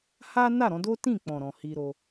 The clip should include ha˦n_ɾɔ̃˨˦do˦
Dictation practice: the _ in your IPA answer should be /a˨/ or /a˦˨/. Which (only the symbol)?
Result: a˦˨